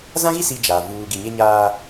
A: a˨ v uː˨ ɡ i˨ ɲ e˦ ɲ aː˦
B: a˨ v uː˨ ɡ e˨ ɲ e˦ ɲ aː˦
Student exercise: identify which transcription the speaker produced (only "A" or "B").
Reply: A